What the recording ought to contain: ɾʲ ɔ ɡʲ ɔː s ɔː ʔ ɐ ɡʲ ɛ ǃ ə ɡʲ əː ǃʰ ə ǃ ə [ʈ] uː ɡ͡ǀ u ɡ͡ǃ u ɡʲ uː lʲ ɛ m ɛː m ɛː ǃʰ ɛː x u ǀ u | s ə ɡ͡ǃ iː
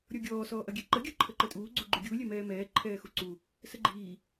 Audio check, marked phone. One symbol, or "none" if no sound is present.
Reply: tʼ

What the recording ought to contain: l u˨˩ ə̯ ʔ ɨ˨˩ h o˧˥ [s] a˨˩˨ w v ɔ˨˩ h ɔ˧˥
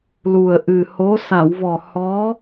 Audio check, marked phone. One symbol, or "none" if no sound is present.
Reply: s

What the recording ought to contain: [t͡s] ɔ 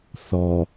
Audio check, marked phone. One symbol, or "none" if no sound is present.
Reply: θ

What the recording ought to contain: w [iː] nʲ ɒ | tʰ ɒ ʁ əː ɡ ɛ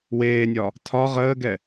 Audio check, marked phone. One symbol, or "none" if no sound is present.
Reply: eː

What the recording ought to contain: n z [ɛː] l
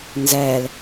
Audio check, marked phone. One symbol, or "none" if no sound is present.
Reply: ɛː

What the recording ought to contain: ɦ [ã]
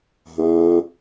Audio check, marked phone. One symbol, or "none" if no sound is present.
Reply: ã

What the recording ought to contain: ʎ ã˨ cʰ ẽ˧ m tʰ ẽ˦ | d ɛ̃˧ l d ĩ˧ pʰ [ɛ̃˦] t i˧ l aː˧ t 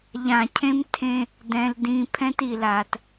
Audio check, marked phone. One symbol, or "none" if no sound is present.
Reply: ɛ̃˦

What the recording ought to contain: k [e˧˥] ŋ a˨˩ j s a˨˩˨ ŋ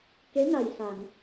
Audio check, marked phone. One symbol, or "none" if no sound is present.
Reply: e˧˥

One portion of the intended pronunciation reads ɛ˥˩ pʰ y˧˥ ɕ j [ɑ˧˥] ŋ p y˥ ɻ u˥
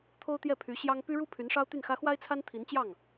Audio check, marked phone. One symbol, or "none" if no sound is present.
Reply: ɑ˥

